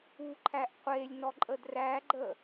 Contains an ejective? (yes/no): yes